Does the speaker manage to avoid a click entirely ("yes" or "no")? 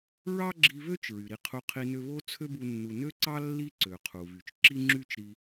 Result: no